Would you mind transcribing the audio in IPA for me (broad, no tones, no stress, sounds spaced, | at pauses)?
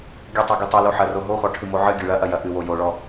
ɡʲ ɨ tˤ o ɡ i tˤ ɘ l o ħ ɐ r o ɦ o x ɔ ʈʰ ɨ m o ʕ ɨ ɡʲ ɨ ɭ ɐ ʔ ɐ j ɐ ʔ ɨ w o j o ɭ ɔ